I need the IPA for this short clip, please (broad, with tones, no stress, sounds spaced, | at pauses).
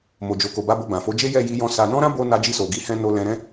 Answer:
m o˨ d͡ʒ o˨ k o˨ b a˧ b o˧ b ã˨ f o˨˦ d͡ʒ e˦ j ɛ˦˨ j i˧ j ɔ̃˧ s a˧ n ɔ̃˦ ɾ ã˦ b o˧ n a˧ d͡ʒ i˧ s o˨ ɡ i˨˦ h ɛ̃˧ n o˧ l ɛ̃˧ ɾ ɛ̃˦